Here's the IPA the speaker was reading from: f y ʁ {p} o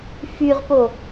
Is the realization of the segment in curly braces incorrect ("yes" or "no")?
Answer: no